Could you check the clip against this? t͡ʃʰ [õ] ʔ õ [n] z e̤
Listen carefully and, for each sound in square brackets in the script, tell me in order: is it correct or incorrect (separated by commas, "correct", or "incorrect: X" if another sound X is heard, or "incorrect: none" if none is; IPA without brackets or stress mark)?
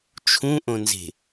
incorrect: ũ, correct